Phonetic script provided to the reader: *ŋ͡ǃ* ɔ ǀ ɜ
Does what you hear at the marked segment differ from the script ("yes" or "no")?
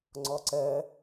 yes